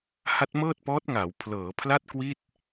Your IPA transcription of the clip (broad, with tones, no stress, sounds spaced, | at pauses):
h a˦˥ t̚ m ɤː˥˩ t̚ p ɔː˦˥ t̚ ŋ aː˩˦ w pʰ l ɤː˩˦ pʰ l a˥˩ t̚ k w i˥˩ t̚